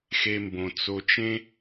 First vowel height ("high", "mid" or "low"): mid